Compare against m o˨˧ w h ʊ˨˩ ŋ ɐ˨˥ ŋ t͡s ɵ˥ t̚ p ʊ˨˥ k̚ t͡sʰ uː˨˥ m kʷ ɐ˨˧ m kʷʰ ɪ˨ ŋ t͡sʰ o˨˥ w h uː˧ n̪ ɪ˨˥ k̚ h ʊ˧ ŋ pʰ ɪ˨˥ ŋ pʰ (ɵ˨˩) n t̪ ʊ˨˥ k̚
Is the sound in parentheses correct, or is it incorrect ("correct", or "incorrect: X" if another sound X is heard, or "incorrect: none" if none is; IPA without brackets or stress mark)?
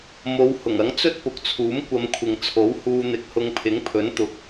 incorrect: ɵ˨˥